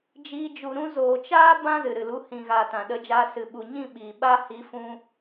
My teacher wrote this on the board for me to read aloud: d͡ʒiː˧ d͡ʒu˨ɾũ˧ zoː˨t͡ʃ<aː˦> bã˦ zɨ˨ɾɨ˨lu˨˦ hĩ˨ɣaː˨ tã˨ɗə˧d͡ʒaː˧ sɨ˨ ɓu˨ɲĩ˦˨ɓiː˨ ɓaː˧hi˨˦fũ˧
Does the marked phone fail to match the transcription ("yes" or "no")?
no